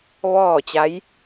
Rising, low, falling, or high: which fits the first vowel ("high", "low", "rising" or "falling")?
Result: falling